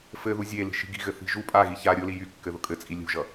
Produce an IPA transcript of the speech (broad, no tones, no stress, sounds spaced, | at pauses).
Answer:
f ɘ ð u zʲ e l i̤ ʃ i̤ ɡ i̤ ɣ ɘ θ i̤ ʒ u pʼ a ɣ i ç a ɾʲ ʊ l i j y kː ɘ ð ʊ kʼ ɘ t͡sʼ i lʲ ṳ ʒ ʌ